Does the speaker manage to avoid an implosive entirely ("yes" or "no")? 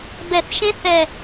yes